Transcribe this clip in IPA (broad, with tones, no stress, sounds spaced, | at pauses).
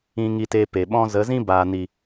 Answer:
ĩ˧ ŋ i˧ t e˧ p e˨ ɓ ɔ̃˦ z ə˨˦ z ĩ˦ b aː˨ n i˨